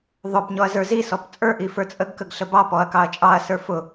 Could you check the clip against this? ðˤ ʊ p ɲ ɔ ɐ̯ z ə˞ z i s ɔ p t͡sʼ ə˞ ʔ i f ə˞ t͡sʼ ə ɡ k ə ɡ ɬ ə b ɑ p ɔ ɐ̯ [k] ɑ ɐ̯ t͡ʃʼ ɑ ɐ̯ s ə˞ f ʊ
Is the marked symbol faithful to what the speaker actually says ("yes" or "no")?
yes